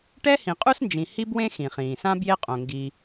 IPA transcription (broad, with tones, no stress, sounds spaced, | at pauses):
ʈ ɛ˥ h ĩ˩ qʼ u˥ s n d͡ʒ ĩ˩ h i˥ b w ẽ˥ x ĩ˩ χ ĩː˩ s ã˥ b j e˥ qʼ õ˩ ŋ ɡ i˩